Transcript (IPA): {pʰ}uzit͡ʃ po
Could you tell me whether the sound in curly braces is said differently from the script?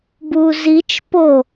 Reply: yes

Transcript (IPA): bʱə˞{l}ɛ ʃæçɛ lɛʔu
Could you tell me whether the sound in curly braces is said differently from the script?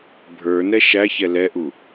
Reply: yes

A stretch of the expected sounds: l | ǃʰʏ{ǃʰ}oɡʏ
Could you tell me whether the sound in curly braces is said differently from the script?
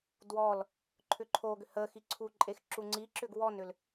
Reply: no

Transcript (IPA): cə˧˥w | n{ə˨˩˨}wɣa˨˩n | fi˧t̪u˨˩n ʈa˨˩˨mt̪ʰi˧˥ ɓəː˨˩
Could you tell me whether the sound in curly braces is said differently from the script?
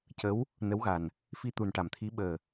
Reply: yes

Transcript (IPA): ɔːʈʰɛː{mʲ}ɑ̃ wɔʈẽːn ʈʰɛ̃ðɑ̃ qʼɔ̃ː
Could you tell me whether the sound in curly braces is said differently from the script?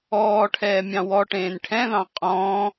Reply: no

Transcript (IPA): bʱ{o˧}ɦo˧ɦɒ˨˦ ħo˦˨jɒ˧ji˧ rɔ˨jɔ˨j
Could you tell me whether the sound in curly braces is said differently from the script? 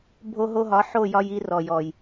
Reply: no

